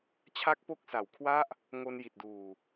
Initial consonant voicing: voiceless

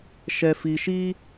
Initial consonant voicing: voiceless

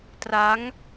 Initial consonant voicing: voiceless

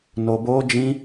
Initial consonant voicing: voiced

